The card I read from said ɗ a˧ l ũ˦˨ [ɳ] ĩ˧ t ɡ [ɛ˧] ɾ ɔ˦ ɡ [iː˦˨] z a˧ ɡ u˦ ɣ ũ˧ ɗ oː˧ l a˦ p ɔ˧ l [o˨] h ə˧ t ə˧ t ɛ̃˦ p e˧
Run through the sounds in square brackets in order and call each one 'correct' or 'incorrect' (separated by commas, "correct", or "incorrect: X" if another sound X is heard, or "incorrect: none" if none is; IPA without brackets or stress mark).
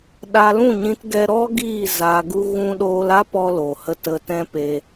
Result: incorrect: ɲ, correct, correct, correct